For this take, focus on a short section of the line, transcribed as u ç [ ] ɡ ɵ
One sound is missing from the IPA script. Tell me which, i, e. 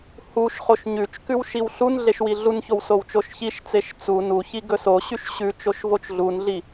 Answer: i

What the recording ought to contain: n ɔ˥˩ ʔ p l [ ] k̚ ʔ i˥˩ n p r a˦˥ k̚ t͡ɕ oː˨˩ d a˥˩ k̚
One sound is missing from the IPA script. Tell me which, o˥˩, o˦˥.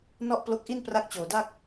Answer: o˦˥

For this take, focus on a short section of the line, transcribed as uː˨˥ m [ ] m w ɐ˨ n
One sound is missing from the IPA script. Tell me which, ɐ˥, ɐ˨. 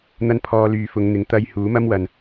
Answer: ɐ˥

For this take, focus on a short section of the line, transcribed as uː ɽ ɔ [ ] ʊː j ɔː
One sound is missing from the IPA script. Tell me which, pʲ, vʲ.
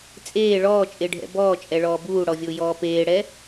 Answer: vʲ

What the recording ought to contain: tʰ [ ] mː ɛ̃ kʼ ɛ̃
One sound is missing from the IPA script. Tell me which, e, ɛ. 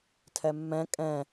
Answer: ɛ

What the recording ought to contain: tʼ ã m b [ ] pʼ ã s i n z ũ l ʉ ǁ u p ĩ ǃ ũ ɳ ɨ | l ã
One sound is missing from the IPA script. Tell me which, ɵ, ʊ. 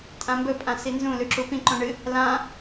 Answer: ɵ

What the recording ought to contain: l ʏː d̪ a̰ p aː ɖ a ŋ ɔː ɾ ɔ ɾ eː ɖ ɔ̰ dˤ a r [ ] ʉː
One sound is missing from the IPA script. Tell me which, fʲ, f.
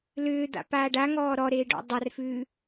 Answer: f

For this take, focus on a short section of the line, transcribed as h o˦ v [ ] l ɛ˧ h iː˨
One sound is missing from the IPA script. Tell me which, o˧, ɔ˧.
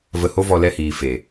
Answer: ɔ˧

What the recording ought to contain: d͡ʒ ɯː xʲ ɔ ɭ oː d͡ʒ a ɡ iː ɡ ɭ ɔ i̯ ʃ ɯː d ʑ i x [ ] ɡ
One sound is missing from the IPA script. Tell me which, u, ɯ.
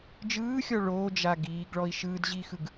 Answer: ɯ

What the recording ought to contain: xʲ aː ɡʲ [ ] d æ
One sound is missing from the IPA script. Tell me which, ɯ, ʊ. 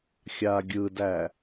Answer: ɯ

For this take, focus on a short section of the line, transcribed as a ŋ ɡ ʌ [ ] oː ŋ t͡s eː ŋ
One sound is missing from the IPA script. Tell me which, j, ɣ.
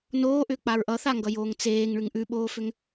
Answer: j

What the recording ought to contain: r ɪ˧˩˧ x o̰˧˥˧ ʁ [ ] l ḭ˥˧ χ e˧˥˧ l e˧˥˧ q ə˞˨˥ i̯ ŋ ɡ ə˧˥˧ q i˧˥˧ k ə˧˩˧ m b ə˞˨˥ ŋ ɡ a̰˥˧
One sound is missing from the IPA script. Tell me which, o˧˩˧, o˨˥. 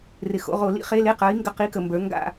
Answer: o˧˩˧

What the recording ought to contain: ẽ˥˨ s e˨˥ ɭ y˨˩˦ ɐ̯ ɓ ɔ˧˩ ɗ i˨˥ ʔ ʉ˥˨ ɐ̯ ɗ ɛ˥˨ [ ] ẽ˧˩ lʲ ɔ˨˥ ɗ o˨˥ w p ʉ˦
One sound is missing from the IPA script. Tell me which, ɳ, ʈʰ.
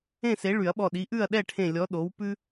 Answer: ʈʰ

